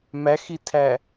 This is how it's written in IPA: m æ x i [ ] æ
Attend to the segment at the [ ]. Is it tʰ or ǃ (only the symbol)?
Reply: tʰ